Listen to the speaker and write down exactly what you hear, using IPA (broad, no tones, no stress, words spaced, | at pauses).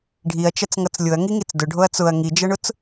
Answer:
ɖʱiɐ̯t͡ʃɐt͡sŋʌt͡s lʲʊɐ̯ŋiŋit͡s dʊɖʱoɐ̯ t͡sʊɐ̯ ŋid͡ʒʌɳʊt͡s